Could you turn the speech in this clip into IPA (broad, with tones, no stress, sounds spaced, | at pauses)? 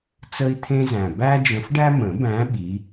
t͡s ə˦ i̯ t̪ʰ ẽ˦ z æ̃˨˩ b æ˦ d͡ʒ ə̃˨˦ f ɖ æ˦ m ə̃˨˩˦ b æ̃˨˦ ɓ i˨˦